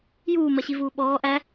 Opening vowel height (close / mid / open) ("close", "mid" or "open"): close